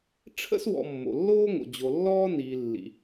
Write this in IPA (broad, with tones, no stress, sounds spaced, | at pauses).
ʈ͡ʂʰ ə̰˥ s w ɔ̰˨ mː o̰˩ lː oː˥ ŋ o̰˩ d͡ʑ o˩ lː ɔː˥ n iː˩ lː ḭ˩